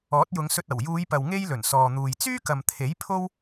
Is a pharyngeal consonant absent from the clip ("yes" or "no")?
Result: yes